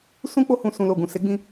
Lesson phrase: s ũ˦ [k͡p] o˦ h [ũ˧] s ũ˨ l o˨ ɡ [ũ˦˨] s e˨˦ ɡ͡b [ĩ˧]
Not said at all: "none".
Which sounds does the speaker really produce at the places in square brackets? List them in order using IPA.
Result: k͡p, ũ˧, ũ˨, ĩ˧

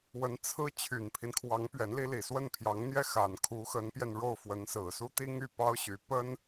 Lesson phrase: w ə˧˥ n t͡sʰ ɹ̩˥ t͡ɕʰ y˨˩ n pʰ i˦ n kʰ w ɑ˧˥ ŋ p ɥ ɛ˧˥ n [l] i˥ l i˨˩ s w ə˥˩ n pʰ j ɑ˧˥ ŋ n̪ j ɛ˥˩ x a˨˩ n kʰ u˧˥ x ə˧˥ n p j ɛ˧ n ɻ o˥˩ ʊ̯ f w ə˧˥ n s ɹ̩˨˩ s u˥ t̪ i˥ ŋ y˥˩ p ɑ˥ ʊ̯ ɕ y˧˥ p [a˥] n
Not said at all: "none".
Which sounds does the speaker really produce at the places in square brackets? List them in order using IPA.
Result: l, ə˥

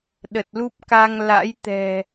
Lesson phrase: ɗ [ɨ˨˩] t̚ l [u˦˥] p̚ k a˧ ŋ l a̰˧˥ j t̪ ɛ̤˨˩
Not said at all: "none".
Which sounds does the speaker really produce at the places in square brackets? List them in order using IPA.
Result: ə˨˩, u˦˥

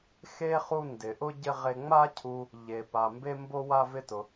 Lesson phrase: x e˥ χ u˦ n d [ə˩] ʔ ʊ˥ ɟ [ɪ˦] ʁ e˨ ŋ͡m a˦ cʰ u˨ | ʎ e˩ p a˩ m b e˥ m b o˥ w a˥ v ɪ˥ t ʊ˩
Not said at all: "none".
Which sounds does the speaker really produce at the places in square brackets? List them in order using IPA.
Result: ɪ˩, ɪ˦

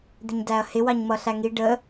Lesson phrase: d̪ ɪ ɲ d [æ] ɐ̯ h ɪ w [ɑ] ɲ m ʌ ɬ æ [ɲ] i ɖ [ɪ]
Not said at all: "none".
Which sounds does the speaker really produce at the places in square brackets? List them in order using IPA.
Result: æ, ɑ, ŋ, ə

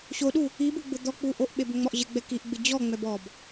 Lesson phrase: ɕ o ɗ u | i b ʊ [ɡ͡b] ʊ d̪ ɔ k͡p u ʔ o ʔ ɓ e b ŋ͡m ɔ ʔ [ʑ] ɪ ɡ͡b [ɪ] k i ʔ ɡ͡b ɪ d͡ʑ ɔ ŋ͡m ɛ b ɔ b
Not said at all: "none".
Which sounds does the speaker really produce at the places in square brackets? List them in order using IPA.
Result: ɡ͡b, ʑ, ɛ

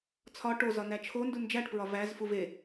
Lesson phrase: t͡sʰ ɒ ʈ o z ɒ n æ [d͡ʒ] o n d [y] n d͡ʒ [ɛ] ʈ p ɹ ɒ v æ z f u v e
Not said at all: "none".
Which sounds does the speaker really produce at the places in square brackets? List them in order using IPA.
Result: t͡ʃʰ, u, æ

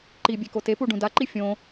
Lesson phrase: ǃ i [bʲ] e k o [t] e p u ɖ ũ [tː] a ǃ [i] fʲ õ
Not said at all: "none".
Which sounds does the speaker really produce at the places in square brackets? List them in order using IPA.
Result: bʲ, t, d, i

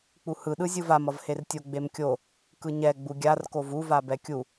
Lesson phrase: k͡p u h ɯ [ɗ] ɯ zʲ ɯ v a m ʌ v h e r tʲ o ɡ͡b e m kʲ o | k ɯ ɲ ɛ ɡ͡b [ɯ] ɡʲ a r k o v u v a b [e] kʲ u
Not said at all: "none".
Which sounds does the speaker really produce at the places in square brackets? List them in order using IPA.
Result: ɗ, u, ɛ

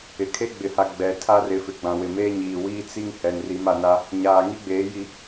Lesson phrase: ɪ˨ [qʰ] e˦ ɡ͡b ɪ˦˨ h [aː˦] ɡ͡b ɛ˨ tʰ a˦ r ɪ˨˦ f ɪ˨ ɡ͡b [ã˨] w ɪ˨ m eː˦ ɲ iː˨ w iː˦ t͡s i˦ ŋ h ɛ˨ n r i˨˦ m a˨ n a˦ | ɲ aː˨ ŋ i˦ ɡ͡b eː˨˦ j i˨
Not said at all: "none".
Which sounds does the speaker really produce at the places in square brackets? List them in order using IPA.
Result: kʰ, a˦, ã˨

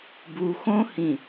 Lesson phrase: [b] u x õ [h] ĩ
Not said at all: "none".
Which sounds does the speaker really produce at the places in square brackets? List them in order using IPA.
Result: b, h

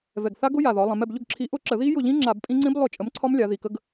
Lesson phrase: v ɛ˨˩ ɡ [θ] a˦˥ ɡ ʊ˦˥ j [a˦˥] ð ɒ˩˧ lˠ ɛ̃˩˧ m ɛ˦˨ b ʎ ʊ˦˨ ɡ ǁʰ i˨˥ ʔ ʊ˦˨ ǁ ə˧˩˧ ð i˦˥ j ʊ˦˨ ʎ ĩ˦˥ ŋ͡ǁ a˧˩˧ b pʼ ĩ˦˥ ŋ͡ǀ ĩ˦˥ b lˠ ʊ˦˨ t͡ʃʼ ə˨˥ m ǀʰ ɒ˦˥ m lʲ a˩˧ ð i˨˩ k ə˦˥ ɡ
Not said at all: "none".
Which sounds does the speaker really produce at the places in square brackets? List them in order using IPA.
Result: θ, a˨˩

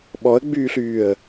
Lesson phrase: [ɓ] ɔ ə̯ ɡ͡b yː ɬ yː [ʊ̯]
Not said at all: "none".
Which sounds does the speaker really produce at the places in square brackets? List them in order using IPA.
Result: ɓ, ə̯

